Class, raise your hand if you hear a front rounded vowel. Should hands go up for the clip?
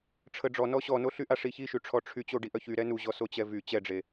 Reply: yes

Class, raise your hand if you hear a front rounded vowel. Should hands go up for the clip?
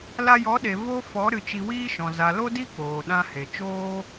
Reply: no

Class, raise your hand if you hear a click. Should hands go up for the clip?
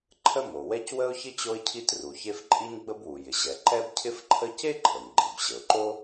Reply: yes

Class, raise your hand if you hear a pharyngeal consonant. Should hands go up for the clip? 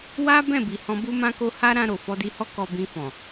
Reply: no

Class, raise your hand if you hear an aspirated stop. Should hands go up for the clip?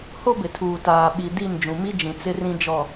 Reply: yes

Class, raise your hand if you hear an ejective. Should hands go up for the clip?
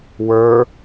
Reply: no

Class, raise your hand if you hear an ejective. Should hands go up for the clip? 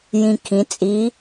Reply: yes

